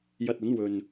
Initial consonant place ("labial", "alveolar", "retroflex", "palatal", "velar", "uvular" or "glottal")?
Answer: palatal